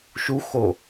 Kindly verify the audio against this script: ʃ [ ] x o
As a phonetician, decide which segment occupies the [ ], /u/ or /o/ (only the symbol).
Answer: u